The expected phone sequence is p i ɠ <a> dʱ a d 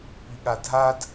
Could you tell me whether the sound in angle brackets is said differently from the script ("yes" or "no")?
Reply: no